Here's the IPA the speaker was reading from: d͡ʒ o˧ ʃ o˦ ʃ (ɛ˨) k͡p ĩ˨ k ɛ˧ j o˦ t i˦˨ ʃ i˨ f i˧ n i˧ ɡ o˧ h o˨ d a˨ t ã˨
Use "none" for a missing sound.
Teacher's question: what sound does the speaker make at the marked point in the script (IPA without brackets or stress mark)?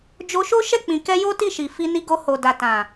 ɛ˦˨